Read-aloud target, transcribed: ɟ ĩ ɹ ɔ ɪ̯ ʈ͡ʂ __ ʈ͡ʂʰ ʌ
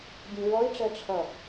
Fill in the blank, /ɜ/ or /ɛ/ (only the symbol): ɜ